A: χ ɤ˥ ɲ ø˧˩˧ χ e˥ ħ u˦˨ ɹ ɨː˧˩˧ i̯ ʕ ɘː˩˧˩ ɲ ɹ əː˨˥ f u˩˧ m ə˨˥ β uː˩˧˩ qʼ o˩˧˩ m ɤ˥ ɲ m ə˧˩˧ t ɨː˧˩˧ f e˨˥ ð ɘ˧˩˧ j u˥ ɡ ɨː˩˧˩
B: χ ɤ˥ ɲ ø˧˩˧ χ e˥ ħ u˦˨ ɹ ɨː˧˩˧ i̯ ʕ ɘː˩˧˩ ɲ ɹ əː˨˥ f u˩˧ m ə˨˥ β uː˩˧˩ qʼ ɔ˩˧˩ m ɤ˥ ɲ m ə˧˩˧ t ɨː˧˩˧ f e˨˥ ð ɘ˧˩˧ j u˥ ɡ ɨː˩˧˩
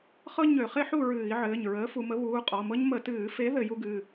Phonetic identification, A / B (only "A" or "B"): B